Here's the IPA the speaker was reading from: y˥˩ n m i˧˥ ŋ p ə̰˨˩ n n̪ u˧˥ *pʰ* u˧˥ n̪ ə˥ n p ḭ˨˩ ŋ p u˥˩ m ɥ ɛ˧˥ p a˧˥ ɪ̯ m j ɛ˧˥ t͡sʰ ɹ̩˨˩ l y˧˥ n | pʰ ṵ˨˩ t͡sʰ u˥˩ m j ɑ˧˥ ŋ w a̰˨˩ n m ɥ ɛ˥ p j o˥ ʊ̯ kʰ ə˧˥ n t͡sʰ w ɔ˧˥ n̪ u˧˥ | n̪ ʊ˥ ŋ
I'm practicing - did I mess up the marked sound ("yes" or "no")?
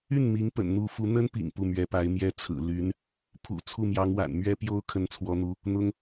yes